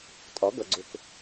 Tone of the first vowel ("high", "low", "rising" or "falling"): rising